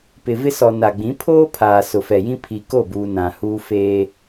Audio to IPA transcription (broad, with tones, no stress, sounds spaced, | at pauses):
p ɪ˨ v ɪ˦ s ɔ˨ n a˨ ɡ͡b ĩ˨˦ pʰ oː˦ pʰ aː˨ s ʊ˨ f ɛ˨ j ĩ˦ pʰ i˨ k o˦˨ b uː˨ n ã˨ h uː˦ f eː˦